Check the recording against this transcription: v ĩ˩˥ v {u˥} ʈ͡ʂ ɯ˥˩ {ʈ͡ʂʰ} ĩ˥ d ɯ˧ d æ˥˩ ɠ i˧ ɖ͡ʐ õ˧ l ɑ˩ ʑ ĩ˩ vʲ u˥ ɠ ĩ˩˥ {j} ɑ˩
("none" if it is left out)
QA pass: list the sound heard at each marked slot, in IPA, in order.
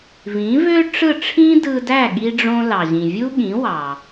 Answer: ø˥, ʈ͡ʂʰ, w

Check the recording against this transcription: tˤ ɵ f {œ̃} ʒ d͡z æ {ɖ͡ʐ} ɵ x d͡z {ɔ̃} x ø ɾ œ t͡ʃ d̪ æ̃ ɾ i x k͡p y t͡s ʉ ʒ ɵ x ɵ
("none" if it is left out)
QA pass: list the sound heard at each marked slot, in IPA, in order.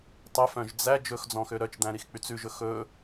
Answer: œ̃, d͡ʒ, ɔ̃

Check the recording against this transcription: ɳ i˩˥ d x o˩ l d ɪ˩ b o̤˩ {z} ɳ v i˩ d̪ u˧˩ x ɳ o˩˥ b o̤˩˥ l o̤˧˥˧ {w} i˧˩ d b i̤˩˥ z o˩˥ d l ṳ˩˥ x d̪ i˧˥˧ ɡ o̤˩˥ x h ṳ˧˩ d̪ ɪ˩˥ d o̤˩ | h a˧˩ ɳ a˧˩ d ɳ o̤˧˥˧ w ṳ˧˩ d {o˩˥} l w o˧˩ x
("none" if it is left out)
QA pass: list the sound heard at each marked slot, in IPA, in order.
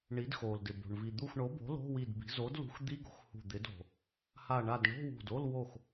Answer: none, w, o˧˥˧

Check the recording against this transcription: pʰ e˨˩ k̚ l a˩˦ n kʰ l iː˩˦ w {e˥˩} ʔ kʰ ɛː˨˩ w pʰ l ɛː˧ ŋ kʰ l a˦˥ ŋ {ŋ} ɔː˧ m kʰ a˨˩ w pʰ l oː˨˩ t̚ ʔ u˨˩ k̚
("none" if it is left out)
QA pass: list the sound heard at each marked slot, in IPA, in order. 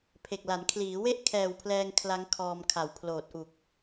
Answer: e˥˩, kʰ

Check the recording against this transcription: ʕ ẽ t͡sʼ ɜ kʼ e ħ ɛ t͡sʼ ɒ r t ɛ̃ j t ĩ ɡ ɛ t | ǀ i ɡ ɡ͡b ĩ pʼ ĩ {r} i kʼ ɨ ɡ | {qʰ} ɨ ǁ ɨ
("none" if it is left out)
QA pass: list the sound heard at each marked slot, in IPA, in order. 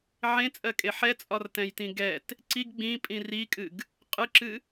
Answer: r, qʼ

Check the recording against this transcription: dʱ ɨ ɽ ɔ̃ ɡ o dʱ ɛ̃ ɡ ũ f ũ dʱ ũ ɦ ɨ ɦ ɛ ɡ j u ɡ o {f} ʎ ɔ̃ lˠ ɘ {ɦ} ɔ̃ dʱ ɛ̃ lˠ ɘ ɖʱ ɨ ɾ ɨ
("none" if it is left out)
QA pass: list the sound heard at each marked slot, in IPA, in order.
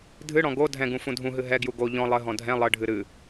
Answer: none, ɦ

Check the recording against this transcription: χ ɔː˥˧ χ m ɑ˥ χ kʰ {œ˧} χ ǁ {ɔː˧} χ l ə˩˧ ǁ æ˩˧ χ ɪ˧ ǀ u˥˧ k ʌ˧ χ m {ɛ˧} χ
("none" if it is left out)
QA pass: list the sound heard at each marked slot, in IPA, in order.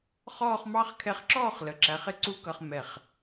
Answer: ɛ˧, ɔː˥˧, ɛ˧˩

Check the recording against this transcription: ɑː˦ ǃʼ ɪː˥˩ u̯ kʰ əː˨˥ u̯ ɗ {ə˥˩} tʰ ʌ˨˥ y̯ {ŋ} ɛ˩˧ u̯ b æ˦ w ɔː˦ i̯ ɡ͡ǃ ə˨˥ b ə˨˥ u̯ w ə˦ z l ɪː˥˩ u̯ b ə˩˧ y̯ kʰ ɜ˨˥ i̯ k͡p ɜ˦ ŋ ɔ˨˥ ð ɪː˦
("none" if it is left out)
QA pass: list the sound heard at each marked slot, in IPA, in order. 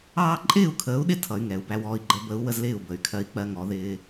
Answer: ɪ˥˩, ŋ

